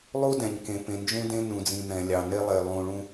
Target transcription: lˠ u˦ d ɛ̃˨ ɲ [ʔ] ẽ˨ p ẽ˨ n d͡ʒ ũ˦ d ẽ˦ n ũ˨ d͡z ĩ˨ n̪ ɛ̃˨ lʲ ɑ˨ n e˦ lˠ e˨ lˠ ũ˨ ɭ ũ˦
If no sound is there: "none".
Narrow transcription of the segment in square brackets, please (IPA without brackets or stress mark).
k